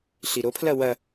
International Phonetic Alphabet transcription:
ɬ i ɾ o pʰ l ɐ w ɐ

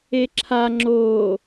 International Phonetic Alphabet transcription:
e ǁʰ a ŋ͡ǁ oː

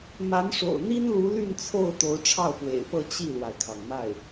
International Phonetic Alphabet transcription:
m a˧˥ n ʂ o̰˨˩ ʊ̯ n̪ i˥ n l u˧˥ l y˥˧ n t͡sʰ o˥˩ ʊ̯ t̪ o˧˥ ʊ̯ ʈ͡ʂʰ ɑ˥˩ ʊ̯ p w ḛ˨˩ ɪ̯ p ɤ˥˧ t͡ɕ i˥˩ l w a˩ ɪ̯ kʰ ɑ˩ ŋ m a˥˩ ɪ̯

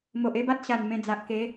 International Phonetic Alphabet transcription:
m o˨ ʔ e˦ b a˦ t̚ ɕ a˨˩ n m ẽ˧ d͡z a˨ ʔ k e˨˦

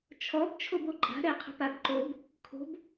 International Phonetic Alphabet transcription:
t͡ʃʰ ɔ b t͡ʃʰ o b o ǃʼ a̤ ɾ ɛ qʰ ə̤ p a b ǃ o b | kʰ o̤ b

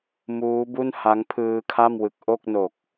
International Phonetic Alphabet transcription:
m uː˦˥ b u˥˩ n h a˦˥ ŋ pʰ ɯː˧ kʰ a˥˩ m w ɯ˨˩ k̚ ʔ o˥˩ k̚ n o˨˩ k̚

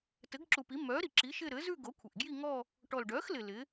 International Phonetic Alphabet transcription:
t ɘ˩˥ ɡ ǁ u˨˩ p i˩˥ m œ˩˥ ɾ i˨˩ ǁ i˩˥ ʃ ɪ˥˧ ɾ ɘ˩˥ z ʉ˥˧ ɡ o˩˥ kʷʰ ɪ˨˩ ʔ ɡ j i˥˧ ŋ ɔ˥˧ | ʈ ɔ˨˩ l ɖ œ˩˥ x l ɪ˨˩ l ɪ˩˥

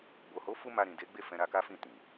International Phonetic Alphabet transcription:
b o˨ h o˨˦ f u˧ m a˧ ɾ ĩ˨ d e˨˦ ɡ͡b e˦˨ f ɛ̃˧ ɾ a˧ k a˦ f ĩ˦˨ t ĩ˨

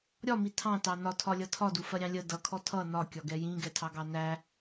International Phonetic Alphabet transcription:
ɾʲ ɒ m i tʰ ɑ̃ t ɑ n ɒ tʰ ɒ lʲ ʌ tʰ ɒ d u f ɜ ɾʲ ɑ̃ lʲ ə d ʌ kʰ ɔ tʰ ʌ n ɒ kʲ ɒ ɡ ɛ j ĩ ɡ ɛ tʰ ɑ ɡ ɑ n æ

